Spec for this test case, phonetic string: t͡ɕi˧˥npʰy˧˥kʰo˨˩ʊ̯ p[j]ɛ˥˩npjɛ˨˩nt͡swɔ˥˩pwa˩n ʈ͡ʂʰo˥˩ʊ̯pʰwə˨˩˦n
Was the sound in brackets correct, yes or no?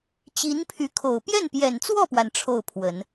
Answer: yes